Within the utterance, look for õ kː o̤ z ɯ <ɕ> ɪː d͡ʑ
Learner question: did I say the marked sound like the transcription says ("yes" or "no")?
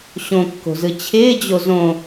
no